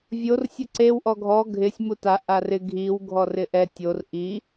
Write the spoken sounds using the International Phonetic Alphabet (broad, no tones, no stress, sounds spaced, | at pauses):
vʲ o r sʲ ʊ ǀ e w ʔ ɔ ɡʱ ɔ ɡʱ ɪ sʲ m u t a ʔ a r ɪ ɡʱ i w ɡʱ ɔ r ɪ ʔ ɛ tʲ o r ʔ i